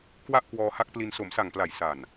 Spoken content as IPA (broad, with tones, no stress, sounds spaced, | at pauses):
k w a˥˩ ʔ k w ɔː˧ h a˦˥ k̚ p l i˧ n s o˩˦ m s a˨˩ ŋ p l a˨˩ j s a˨˩ n